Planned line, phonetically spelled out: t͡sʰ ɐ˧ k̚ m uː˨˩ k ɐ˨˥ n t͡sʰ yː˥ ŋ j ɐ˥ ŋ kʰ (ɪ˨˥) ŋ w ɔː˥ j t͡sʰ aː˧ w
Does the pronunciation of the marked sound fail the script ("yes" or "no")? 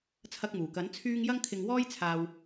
yes